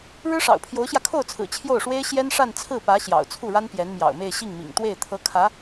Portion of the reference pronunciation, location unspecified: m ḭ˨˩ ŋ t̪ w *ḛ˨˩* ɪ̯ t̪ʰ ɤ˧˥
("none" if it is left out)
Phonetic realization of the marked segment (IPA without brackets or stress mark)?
e˥˩